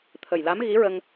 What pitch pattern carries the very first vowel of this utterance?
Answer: low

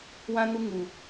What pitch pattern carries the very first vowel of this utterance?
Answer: high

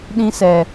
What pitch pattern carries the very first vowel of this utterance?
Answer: high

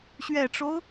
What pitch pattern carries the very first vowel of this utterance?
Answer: low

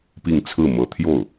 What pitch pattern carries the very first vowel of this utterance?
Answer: falling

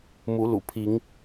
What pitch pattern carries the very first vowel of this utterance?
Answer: rising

